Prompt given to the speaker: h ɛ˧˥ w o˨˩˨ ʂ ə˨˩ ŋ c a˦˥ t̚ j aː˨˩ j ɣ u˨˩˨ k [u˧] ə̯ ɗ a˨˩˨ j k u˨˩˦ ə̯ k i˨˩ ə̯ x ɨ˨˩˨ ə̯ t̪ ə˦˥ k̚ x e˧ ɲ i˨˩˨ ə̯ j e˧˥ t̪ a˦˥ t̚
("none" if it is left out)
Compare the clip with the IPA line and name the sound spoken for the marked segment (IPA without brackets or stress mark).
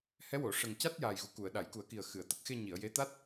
u˨˩˨